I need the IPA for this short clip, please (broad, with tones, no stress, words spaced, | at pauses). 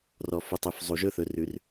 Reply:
rɔ˨fu˨tˤy˨f zˤu˨ʒɵ˦θɵ˨r ʉ˨r